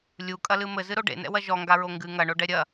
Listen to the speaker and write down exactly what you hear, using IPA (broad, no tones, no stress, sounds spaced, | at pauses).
lʲ u kʼ ɐ l ɨ m ɘ z ɨ ɾ o ɖ ḛ n ɛ̰ w ɐ ʒ ɔ ŋ ɡ a ɹ o ŋ ɡ ɨ ŋ ɐ ɳ o ɖ ɛ ɾʲ ɐ